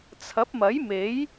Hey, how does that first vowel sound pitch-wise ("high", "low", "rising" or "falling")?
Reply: rising